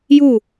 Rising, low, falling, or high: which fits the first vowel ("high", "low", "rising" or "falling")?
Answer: falling